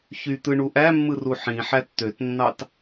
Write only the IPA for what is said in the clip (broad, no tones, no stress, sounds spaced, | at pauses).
ç y t̪ ɯ ɳ u ʔ æ mː ɯ r u ħ ĩ ħ æ t t̪ ø t nː ɑ t